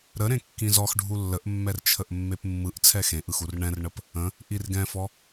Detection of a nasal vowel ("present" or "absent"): present